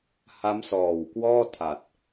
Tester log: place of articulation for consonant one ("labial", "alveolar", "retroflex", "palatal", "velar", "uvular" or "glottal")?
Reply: glottal